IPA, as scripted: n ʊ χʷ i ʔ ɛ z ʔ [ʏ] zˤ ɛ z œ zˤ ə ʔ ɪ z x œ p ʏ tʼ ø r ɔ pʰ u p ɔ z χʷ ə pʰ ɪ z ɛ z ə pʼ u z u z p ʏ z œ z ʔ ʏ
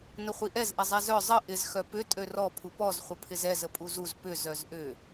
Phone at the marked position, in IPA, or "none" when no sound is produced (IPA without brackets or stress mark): ɪ